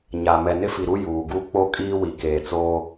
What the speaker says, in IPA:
ɲ a˨ m ɛ˨ n ɪ˦ f i˨ ɾ u˦ j uː˨ ɡ u˦ k͡p o˦ kʼ iː˦ w i˨ k eː˨ t͡s oː˦

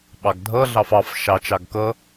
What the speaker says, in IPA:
ɓ ɑ ɡ dʱ ɤ ɮ ɑ f ɑ f ʃ ɑ t͡ʃ ɑ ɡ k ɤ

